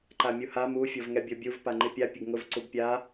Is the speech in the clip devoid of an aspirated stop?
yes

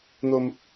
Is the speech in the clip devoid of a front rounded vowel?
yes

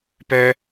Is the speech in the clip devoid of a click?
yes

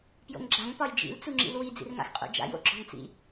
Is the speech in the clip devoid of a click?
no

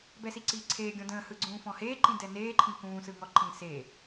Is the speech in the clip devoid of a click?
no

